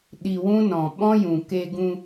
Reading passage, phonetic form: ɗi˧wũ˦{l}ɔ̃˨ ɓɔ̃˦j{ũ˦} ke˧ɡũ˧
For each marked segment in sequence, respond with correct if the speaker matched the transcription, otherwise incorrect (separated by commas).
incorrect, incorrect